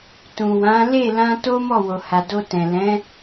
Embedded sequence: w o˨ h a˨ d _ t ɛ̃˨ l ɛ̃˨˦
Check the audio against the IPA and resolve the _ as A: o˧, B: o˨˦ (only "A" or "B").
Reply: A